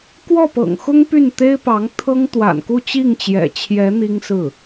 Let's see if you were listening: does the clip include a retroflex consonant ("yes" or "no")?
no